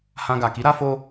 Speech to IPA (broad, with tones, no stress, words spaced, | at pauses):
hã˧ɡa˨ ki˨˦ɾa˧fo˧